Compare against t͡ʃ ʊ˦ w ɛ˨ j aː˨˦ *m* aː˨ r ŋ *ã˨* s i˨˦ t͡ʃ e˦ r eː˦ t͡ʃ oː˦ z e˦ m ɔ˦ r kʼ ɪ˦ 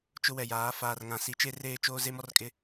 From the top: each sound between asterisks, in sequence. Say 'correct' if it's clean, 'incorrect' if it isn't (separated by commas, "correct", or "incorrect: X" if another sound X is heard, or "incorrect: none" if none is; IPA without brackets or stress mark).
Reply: incorrect: f, correct